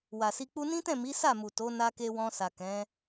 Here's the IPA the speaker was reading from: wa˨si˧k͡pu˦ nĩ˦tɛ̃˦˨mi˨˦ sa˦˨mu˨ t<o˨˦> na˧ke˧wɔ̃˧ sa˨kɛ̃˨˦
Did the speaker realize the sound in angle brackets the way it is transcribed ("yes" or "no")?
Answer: yes